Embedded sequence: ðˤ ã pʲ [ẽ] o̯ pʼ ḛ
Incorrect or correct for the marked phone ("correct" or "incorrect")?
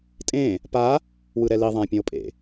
correct